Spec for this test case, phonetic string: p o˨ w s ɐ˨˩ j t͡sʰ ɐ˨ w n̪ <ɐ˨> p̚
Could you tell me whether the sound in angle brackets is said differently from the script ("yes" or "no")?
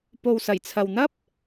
yes